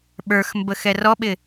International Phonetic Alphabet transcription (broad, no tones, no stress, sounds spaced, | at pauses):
ɓ ə˞ x m b ə x ɛ r ɔ ɓ ɪ